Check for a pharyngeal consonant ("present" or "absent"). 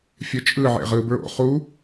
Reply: present